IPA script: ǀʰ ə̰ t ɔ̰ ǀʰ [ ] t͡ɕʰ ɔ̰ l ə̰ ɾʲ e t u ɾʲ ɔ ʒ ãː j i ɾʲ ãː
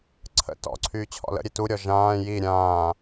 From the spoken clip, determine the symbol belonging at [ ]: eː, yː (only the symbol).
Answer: yː